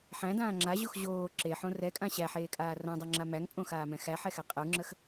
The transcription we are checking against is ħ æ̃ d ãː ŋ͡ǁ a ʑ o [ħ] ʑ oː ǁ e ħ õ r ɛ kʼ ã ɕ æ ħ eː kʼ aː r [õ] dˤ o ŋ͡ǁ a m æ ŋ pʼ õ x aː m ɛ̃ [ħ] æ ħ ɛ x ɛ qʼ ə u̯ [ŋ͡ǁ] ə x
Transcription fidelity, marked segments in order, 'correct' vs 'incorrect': incorrect, correct, incorrect, correct

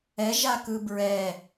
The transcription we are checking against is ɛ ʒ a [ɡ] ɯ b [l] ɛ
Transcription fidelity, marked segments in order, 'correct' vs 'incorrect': incorrect, incorrect

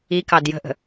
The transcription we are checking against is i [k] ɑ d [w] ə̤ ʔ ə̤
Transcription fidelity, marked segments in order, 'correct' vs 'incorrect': correct, incorrect

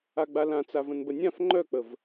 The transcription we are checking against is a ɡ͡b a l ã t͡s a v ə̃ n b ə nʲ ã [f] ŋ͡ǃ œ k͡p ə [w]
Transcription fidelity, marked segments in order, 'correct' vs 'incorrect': correct, incorrect

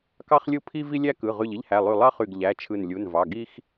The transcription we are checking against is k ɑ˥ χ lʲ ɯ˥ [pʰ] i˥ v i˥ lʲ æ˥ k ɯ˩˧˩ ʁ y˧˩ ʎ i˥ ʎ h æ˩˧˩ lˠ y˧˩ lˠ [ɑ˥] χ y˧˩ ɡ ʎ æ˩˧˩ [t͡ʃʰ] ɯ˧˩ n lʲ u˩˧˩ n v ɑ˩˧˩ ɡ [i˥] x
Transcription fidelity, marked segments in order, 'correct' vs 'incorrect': correct, correct, correct, correct

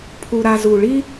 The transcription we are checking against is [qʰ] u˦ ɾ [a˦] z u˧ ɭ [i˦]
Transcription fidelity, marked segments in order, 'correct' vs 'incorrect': incorrect, correct, correct

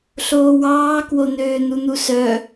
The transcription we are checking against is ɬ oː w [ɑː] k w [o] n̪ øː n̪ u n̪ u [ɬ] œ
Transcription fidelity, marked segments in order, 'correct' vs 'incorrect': correct, correct, incorrect

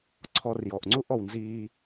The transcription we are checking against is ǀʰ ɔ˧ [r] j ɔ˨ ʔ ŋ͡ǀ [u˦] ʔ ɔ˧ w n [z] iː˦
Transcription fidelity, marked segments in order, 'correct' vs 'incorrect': correct, correct, correct

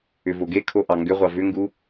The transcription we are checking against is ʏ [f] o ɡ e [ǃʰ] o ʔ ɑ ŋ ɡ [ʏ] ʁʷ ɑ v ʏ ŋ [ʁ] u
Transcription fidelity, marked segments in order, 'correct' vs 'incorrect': incorrect, incorrect, correct, incorrect

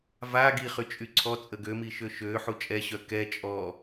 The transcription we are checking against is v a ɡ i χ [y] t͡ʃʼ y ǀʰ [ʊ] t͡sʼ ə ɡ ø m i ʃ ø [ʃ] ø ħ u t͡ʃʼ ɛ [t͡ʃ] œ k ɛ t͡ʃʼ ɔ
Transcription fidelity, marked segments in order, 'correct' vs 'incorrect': correct, incorrect, correct, incorrect

